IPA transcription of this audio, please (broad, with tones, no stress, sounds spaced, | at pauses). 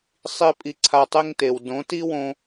sˤ i˦ pʼ i˧ ǀʰ a˧ tˤ e˦ ŋ t e˨ w d õ˨˦ t i˦ w õ˧